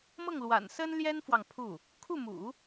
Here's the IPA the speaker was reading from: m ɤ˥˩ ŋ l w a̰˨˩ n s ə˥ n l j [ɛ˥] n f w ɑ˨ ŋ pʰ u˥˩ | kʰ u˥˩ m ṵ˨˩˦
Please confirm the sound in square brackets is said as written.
yes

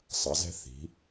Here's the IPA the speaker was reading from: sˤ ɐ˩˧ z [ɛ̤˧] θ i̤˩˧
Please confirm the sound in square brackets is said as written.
yes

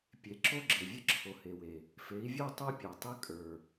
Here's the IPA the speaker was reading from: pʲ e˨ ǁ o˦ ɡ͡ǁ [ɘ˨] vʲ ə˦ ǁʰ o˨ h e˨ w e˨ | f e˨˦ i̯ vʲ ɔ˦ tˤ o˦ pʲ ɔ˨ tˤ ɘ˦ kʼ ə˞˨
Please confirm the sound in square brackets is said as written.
yes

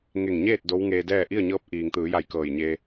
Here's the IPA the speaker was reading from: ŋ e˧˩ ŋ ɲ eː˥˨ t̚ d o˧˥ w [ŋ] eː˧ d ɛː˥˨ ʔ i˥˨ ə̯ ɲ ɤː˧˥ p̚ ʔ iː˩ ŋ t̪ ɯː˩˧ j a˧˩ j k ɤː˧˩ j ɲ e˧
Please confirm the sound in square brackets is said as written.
yes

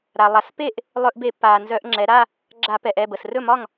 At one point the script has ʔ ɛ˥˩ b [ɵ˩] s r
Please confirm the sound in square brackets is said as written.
no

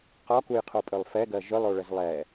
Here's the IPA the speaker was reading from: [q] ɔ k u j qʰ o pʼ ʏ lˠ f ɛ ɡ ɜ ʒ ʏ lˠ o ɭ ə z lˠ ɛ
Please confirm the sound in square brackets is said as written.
yes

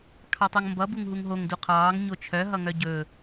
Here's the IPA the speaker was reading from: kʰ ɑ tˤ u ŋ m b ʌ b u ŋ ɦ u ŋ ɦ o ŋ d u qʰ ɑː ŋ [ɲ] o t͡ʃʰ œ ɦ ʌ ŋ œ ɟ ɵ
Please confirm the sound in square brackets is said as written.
yes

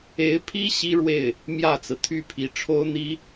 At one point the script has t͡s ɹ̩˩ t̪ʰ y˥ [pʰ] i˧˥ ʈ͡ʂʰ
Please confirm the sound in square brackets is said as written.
yes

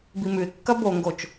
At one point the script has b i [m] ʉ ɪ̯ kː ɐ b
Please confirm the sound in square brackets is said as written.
yes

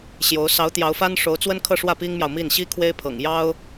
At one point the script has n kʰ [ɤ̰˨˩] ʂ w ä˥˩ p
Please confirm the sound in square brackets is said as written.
no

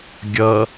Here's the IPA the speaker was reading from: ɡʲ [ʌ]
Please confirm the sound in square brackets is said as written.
yes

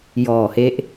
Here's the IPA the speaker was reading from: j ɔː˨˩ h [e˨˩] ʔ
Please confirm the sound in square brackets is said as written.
no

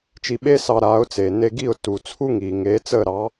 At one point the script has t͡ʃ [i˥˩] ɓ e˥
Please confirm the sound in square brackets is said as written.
no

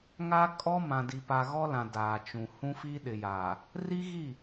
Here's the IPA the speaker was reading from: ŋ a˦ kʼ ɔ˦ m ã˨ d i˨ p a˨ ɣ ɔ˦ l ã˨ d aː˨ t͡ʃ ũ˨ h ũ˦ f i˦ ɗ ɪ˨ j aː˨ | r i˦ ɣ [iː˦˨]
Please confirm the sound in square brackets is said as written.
no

